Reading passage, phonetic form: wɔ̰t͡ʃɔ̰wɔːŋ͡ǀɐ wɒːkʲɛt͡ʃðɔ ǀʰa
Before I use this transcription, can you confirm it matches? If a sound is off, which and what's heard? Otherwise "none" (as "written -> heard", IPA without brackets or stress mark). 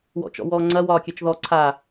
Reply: none